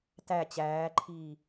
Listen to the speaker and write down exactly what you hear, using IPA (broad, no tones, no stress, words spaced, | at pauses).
tæ t͡ɕæːǃʰiː